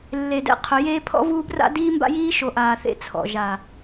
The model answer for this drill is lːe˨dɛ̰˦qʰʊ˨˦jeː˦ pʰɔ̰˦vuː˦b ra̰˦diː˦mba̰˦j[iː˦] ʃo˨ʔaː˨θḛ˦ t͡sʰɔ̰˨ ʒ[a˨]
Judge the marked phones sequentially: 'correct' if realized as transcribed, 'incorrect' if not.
correct, correct

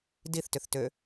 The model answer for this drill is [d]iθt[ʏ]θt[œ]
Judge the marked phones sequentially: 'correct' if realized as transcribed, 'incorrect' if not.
correct, correct, incorrect: ø

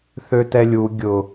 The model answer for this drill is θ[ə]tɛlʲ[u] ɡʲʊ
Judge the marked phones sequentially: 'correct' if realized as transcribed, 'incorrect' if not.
incorrect: ø, correct

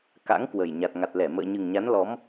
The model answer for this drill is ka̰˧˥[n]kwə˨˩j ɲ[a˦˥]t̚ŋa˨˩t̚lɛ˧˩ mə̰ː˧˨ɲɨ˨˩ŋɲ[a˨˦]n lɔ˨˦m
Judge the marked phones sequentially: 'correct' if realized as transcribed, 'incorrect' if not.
incorrect: ŋ, incorrect: a˨˩, correct

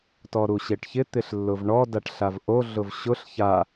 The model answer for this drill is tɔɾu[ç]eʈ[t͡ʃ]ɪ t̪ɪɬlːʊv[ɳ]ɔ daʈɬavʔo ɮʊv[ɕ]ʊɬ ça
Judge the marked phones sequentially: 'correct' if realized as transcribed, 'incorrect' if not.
incorrect: ɕ, incorrect: ç, correct, correct

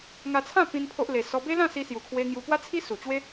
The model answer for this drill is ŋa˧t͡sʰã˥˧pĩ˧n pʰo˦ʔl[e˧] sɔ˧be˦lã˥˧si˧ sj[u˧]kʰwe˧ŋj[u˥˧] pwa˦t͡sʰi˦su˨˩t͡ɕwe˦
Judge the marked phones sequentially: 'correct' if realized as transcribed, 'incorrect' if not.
correct, incorrect: u˨˩, incorrect: u˧

